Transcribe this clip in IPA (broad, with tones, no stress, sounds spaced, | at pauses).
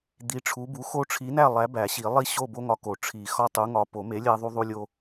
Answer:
d̪ i˨˥ ʈ͡ʂʰ u˨˥ b u˨˥ x o˦ ʈ͡ʂʰ i˨˥ n æ˥˩ lˠ æ˨˥ b æ˨˩˦ ɕ i˨˩˦ lˠ i˦ ɕ o˥˩ b o˦ ŋ ɒ˨˥ k o˨˩˦ ʈ͡ʂʰ i˨˩˦ x ɒ˥˩ tˤ u˨˥ ŋ ɒ˨˥ p o˨˩˦ m e˨˥ lʲ æ˦ ðˤ u˦ ðˤ u˦ lʲ o˦